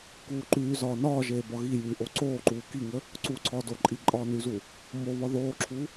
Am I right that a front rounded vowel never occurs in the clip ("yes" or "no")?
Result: no